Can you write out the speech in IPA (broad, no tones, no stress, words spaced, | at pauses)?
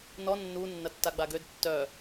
nɔ nːu nːɐtːaɡ͡baɡød tːœ